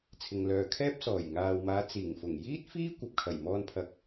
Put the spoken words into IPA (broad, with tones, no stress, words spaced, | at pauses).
t͡sʰɪ˧ŋlœː˧ kʰɛː˥p̚sɔː˨˩jŋaː˨wmaː˨˧ t͡siː˨˩ŋfʊ˨˩ŋ jiː˥t̚fiː˥ kʷɐ˨p̚kʰɐ˨˩jmɔː˧n pʰɐ˨k̚